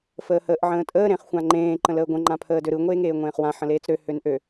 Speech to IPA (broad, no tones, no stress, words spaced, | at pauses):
fəːhəːʔʕə̃ːtʼəː ɾẽχxʷãŋ͡ǃẽː ǃə̃ləːɡʷə̃ ŋ͡ǃãpʰəːdøɾɯ ŋʷeːŋeːŋʷẽːχwã ħə̃leːt͡sɾø hønʔø